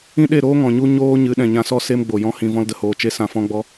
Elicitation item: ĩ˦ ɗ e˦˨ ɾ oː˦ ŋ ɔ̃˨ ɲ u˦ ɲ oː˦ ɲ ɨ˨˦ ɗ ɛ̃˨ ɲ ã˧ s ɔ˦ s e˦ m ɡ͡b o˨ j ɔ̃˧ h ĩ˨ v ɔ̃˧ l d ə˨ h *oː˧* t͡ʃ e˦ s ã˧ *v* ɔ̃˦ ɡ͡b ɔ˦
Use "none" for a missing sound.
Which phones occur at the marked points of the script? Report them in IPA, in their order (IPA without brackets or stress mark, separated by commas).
oː˨, f